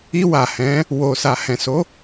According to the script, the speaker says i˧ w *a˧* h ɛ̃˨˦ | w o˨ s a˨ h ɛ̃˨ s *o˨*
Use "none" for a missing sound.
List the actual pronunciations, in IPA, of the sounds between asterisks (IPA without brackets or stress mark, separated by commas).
a˨, o˨˦